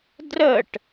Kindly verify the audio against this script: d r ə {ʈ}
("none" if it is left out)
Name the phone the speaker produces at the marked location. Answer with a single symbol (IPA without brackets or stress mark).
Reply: ʈ